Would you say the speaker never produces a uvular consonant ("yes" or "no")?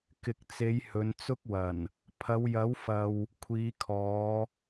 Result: yes